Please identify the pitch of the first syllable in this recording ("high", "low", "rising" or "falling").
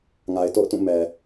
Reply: low